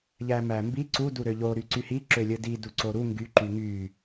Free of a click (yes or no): no